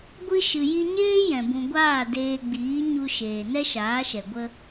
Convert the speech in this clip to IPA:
ɡʷ ɨ˦ ʃ ɨ˨ j i˧ ɲ eː˦ j ɛ̃˨ b ũ˨ ɡʷ aː˦˨ d eː˧ ɡ͡b iː˨˦ ɲ u˧ ʃ eː˨ n ɛ˦ ʃ aː˨˦ ʃ ɛ˨ ɡʷ ə˦

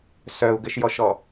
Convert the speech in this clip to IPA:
s œ u̯ ɡ ɘ ʃ j ɔ ʃ ɔ

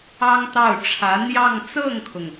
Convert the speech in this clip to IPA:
ɑ˥ ŋ t̪ ɑ˥˩ ʊ̯ ʈ͡ʂʰ ä˧˥ n̪ j ɑ˥˧ ŋ t͡s ɤ˥˩ ŋ kʰ ʊ˩ ŋ

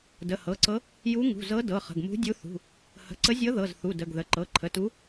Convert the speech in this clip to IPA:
d ə˩˧˩ h ɤ˩˧˩ ǀ ɤ˧˥ | j u˧˥ ŋ ṳ˩˧˩ z ɤ˧˥ d ɤ˩˧˩ χ ə̤˩˧˩ ɡ m ṳ˧˥ dʲ u˧˥ θ ṳ˩˧˩ | h ə̤˩˧˩ ǀ ə˧˥ zʲ ɤ˧˥ ð ɤ˩˧˩ z θ u˩˧˩ d ə˩˧˩ ɡ ð ə˩˧˩ ǃ ɤ˩˧˩ ǃʰ ə˩˧˩ t u˧˥

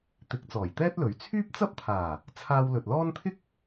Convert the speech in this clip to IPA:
t̪ ɪ˨˥ k̚ t͡s ɔː˨˩ j t̪ ɛː˥ t̚ l ɵ˨˥ ɥ t͡sʰ yː˥ p̚ t͡s ɐ˥ p̚ t̪ʰ aː˨˩ | t͡sʰ aː˧ w l ɵ˨ t̚ l ɔː˥ n t̪ʰ ɪ˥ k̚

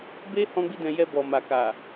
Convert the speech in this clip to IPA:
b e˦ h ɔ̃˦ ɡ͡b i˦ d ɛ̃˧ j ɛ˧ b ɔ˨ m a˨ k a˨

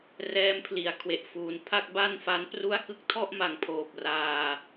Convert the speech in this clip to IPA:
r ɛː˦˥ m pʰ l i˩˦ a̯ kʰ w e˨˩ ʔ f uː˨˩ n pʰ a˥˩ k̚ b a˥˩ n f a˦˥ n p r u˥˩ a̯ k ɯ˦˥ k̚ tʰ ɔ˥˩ ʔ m a˨˩ ŋ pʰ oː˨˩ p̚ r aː˧

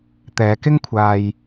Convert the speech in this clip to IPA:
t̪ ɛː˨˧ k ɪ˥ ŋ kʷʰ aː˧ j

